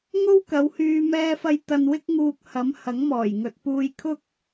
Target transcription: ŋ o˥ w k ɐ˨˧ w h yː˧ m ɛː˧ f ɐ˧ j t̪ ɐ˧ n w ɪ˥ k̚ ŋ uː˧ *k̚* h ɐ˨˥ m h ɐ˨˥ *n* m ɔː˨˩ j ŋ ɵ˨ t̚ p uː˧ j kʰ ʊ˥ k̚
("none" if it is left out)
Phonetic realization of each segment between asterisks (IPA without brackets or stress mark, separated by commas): k̚, ŋ